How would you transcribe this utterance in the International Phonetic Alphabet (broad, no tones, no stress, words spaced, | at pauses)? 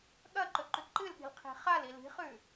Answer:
ɠɐǃɵǃʉ ǃɨlɠi̤lqʰi̤ χali li̤χʉ